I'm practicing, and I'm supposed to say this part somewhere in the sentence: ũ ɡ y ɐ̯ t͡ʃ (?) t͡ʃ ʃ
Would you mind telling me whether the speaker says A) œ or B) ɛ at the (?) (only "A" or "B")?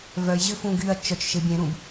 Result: A